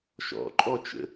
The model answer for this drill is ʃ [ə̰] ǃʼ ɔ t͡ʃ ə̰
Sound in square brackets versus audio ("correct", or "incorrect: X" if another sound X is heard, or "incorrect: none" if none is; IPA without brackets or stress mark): incorrect: ɔ̰